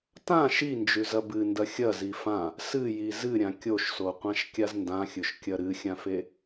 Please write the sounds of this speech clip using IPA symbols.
t ã ʃ i n d͡ʒ ʉ z ɐ b ɨ n d ɐ xʲ ɐ z i f ã | s ɨ j i z ɨ ɾʲ ã kʲ o ʃ s o qʷ ã ʃ kʲ a z n d ã xʲ ɵ ʃ kʲ ɐ ɾ ɨ xʲ ã f e

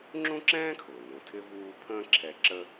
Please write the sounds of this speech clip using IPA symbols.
ŋ͡ǁ ũ˥ ǁ ɛ̃ː˥ kʰ ʊː˩ n ũ˩ tʰ ɪ˥ v uː˦ pʰ ə̃ː˦ ǁʰ ɛ˨ ǁ ə˦

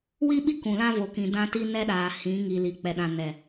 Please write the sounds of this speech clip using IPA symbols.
w i˦ ɓ i˦ k ũ˨ l ã˦ v o˨ k ĩ˨ d ã˦ t i˦ n ɛ˦ ɗ aː˨ h ĩ˨˦ ŋ i˨ l i˨ k͡p ɛ˨ ɗ ã˨ n ɛ˨

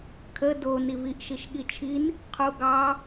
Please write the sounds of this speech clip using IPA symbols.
kʰ ə d o n i v i ʔ ʃ i ʃ ɠ i t͡ʃʰ i n | qʰ u ɡ ɑ

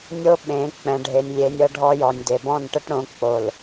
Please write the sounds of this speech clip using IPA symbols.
nʲ o˦ ɓ ẽ˨˦ k͡p ɛ̃˨ ɖʱ e˨ nʲ lʲ e˨ nʲ ɤ˦ ɖʱ ɔ˦ j ɔ˨ nʲ d e˨ b ɔ̃˦˨ n ʈ ə˦ ʈ ɽ õ˨˦ k͡p o˨ l

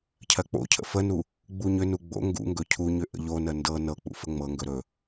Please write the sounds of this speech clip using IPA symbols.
cʰ ɜ k͡p o̰ cʰ ə̰ f ə n u | ɡ͡b u ɲ ʏ n u ɡ͡b o̰ ŋ ɡ ṵ ŋ ɡ ɵ cʰ u ɲ ʏ ʔ ə̰ ʎ o n ə n d ɤ n ɤ k͡p ṵ f ə ŋ͡m ɤ ŋ ɡ ɵ ɾ ɵ

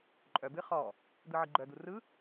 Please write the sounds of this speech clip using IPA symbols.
ǃʼ œ b ɨ χ ɔ | d̪ ɯ ʕ ɨ ɡ͡ǃ œ d̪ u r ɯ

